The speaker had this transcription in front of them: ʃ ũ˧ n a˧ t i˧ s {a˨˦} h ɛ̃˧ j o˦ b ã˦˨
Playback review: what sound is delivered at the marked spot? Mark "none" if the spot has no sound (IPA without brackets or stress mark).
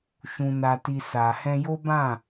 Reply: a˨